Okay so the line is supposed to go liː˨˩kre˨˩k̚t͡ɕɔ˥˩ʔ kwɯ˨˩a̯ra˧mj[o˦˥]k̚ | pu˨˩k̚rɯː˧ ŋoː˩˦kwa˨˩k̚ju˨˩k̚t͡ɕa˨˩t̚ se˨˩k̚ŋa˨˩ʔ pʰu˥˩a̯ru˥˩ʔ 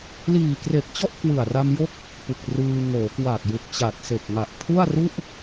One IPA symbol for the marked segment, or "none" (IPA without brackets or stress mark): o˦˥